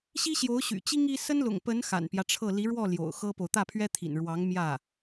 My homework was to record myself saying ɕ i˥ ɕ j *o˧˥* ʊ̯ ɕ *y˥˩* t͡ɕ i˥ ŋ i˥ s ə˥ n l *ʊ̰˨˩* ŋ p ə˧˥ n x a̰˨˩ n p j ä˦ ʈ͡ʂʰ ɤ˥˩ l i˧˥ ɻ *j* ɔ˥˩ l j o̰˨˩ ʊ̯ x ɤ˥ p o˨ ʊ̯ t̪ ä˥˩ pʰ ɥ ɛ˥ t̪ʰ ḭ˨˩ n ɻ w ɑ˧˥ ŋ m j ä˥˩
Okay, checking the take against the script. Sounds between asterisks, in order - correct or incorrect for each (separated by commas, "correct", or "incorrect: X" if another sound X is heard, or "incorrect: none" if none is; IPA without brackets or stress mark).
correct, incorrect: y̰˨˩, correct, incorrect: w